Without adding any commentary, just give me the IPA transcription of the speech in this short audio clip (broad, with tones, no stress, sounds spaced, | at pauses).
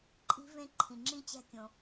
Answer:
ǃʼ i̤˦˥ v ẽ˦˥ ǃʰ ĩ˩ ŋ͡ǁ ĩ˦˥ t͡ɕ æ̤˦˥ kʲ õ˩